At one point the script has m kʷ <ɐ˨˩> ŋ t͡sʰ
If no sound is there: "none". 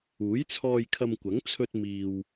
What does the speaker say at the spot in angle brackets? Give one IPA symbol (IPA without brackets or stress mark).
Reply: ɐ˨˥